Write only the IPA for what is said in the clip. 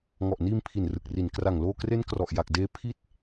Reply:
ŋ ɔ˨˩ ʔ n iː˧ m pʰ i˨˩ n r ɯ˨˩ k̚ r i˨˩ n k r a˨˩ ŋ l oː˧ k r e˦˥ n k r ɔ˨˩ ʔ j a˨˩ k̚ d eː˦˥ pʰ i˦˥ t̚

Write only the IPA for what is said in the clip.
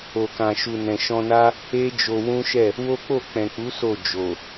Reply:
o˨ k ã˨ ʃ u˨ n ɛ̃˨ ʃ ɔ̃˧ n a˦ | e˦ d͡ʒ o˧ w ũ˦ ʃ ɛ˦˨ | w o˦ k͡p o˦˨ k͡p ɛ̃˨ k͡p u˨˦ s o˦˨ d͡ʒ o˨

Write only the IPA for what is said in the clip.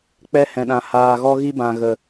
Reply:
k͡p ɛ˧ h ɛ̃˨ ɗ ã˨ h aː˨ ɣ ɔ˧ ɣ i˧ b ã˨ ɣ ə˨

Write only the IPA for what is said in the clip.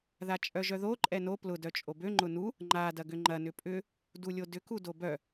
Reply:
ð a t͡ʃʼ œ ʒ œ ð o ǃʼ ɛ n o p l ʊ d œ t͡ʃʼ o b ø ŋ͡ǃ ʊ n u | ŋ͡ǃ a d ɐ ɡ ʏ ŋ͡ǃ ɐ n ʏ pʼ ʏ | d u lʲ o d ʏ k u d o b œ

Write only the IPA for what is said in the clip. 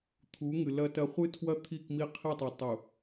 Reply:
t̪ʰ u˨˦ ŋ ɨ˨ l ɐ˦ t ɐ˦ χʷ ɨ˦ tʰ w ɐ˦ t̪ʰ i˦˨ k m i˦ qʰ i˦˨ tˤ a˨ tˤ u˨

